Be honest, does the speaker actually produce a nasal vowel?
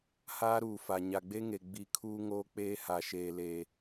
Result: no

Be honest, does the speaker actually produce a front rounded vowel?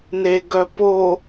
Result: yes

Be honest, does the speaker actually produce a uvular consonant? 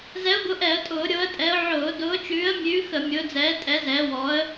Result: no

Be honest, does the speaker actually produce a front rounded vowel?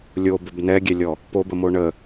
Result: no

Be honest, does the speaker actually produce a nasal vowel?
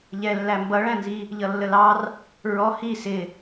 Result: yes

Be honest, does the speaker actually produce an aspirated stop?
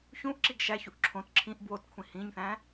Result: yes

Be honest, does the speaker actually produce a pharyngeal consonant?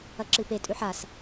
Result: yes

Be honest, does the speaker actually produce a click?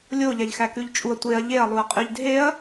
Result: no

